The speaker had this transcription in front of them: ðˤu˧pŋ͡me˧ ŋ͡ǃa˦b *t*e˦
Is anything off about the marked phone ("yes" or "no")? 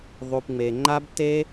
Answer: no